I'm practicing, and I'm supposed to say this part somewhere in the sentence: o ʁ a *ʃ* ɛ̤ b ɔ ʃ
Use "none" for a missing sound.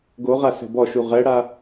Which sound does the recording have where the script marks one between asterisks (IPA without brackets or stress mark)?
s